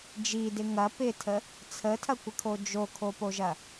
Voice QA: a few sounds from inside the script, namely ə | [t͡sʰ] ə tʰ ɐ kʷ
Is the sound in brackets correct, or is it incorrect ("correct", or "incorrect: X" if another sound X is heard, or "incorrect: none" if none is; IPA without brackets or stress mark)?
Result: correct